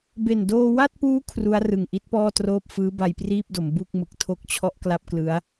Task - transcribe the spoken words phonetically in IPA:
be˨˩ndoː˧wa˥˩t̚puː˦˥ kʰru˦˥a̯ rɯ˨˩ŋʔi˦˥t̚pɔː˥˩troː˥˩p̚ fɯː˦˥ba˧jpriː˥˩p̚do˩˦m bu˥˩k̚mɯ˨˩k̚ tʰo˥˩k̚t͡ɕʰɔ˥˩ʔkla˥˩p̚klɯ˦˥a̯

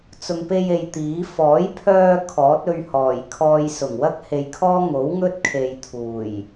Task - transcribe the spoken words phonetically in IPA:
t͡sʊ˨ŋpe˧je˨j t̪iː˨˥ fɔː˨˥jpʰœː˧ kʰɔː˨˥t̚ɵ˧ɥ hɔː˨˩jkʰɔː˧j sʊ˨˩ŋwɐ˥k̚ he˧j kʰɔː˥ ŋo˨˥w ŋɵ˥t̚kʰe˨j t̪ʰuː˨˩j

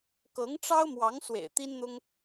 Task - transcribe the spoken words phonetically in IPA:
kɤ˧˥ŋʈ͡ʂɑ˥ʊ̯mwɑ˧˥ŋ swḛ˨˩ɪ̯t̪i˥nn̪ʊ˥ŋ

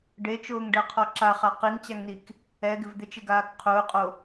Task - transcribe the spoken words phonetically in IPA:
ɖet͡ʃʊːŋɖɛqʰɔ ǁaχa qiŋt͡ɕaŋnik | ɛɡɪv d̪ɪt͡ʃɪɡaːk qʰʊːqʼo

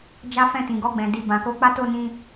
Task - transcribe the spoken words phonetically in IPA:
d͡ʒa˦fɛ̃˦˨ tĩ˨ɡɔ˧ɡ͡bɛ̃˨ di˧ bã˨ko˧k͡pa˦ to˦˨nĩ˧

